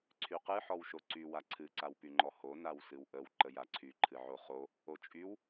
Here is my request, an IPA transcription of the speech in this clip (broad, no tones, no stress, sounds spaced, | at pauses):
ǀʰ y q ɨ ħ ɔ w ʃ o ǀ y w a ǀʰ ɨ ǀ a w p y ŋ͡ǃ ɔ h o n a w s ɨ w ʔ ə w ǃ ə j a ǀʰ y ǃʰ ɨ ʕ o χ o | o t͡ʃʼ y w